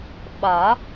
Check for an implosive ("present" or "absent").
present